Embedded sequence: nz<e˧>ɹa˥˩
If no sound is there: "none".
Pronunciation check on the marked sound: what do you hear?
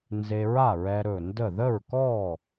e˧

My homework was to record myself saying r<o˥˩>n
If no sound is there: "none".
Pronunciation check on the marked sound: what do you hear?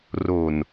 o˨˩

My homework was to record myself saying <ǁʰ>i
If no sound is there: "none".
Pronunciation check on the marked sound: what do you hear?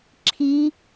ǁʰ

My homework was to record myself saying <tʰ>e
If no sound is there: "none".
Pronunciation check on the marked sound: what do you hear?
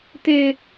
t̪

